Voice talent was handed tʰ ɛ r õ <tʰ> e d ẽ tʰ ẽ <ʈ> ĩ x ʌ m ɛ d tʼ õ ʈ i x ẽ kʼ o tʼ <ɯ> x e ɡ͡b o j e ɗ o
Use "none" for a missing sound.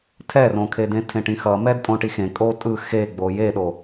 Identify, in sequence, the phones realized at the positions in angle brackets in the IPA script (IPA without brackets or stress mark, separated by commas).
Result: kʰ, ʈ, ɯ